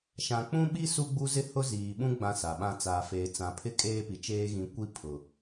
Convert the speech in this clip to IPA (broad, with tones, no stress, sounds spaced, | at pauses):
ʃ ã˨ k͡p ũ˦ ɓ i˦ s u˦ ɡ͡b u˦ z ɪ˦ h ʊ˦ z iː˨ ɓ ũ˦ ɡ͡b ã˦ s a˨ ɓ ã˦ t͡s aː˨ f eː˨ t͡s ã˨ pʰ ɪ˦ kʼ eː˦ p i˨ t͡ʃ eː˦ ɣ ĩ˨˦ kʷ i˦ pʰ ʊ˨